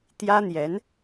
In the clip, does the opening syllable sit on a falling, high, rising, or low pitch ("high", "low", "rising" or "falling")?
high